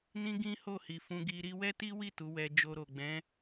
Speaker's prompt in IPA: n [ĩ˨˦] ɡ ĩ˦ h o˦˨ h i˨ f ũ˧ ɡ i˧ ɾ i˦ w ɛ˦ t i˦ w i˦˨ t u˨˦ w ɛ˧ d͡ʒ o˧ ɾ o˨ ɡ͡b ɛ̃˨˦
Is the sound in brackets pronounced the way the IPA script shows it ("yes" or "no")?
no